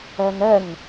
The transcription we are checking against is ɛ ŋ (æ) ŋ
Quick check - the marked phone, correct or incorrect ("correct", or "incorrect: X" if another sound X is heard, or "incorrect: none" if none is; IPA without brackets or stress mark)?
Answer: incorrect: ɛ